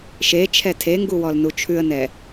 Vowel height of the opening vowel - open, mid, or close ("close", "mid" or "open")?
mid